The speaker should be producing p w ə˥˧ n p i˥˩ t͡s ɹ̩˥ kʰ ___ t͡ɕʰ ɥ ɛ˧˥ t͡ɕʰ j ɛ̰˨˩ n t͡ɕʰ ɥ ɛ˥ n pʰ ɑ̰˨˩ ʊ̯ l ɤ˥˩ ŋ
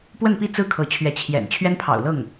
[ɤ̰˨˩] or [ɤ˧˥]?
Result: ɤ˧˥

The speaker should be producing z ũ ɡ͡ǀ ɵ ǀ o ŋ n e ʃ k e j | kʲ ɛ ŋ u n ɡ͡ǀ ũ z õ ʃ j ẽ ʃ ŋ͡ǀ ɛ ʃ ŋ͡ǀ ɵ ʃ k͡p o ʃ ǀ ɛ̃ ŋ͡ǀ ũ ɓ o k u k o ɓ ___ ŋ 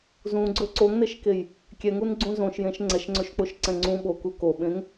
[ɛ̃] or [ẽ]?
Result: ẽ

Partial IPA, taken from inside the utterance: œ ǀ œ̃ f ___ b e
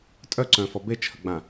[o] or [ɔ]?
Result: ɔ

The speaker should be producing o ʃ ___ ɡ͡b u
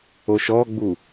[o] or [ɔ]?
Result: ɔ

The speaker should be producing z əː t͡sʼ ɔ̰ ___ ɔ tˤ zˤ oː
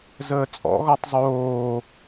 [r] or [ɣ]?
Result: ɣ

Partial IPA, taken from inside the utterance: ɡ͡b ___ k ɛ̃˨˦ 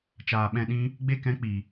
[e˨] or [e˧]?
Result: e˧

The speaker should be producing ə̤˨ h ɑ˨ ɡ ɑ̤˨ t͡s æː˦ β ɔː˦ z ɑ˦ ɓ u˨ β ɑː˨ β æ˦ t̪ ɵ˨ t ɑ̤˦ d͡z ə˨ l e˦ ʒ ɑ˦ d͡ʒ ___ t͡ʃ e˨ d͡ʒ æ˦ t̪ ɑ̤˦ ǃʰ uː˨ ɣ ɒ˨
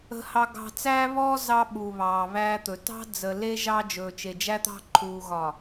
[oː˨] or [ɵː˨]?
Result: ɵː˨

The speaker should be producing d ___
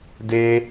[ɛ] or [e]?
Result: e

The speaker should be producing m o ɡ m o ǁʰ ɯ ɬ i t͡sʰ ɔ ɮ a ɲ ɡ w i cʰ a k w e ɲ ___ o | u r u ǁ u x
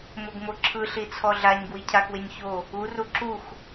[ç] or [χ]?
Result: ç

